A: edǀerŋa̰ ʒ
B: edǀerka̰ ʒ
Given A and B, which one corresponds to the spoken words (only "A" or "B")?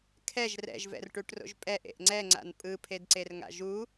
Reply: A